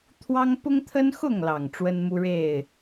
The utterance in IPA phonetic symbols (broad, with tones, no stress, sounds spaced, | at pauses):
t̪ʰ w ɑ˦ ŋ p ʊ˦ ŋ t̪ʰ ə˦ n x ʊ˥˨ ŋ l ɑ˨˩ ŋ ʈ͡ʂ w ə˦ n m u˦ ɻ e˥˨ ɪ̯